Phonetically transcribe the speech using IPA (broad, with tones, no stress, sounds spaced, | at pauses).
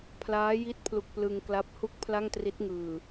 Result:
pʰ l aː˦˥ j i˦˥ t̚ pʰ l u˨˩ k̚ p l ɯ˧ ŋ k l a˦˥ p̚ h u˥˩ k̚ pʰ l a˥˩ ŋ t r i˦˥ t̚ ŋ ɯː˨˩